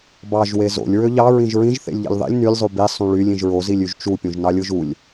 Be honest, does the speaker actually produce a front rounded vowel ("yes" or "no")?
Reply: yes